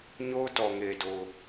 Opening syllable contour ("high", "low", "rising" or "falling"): high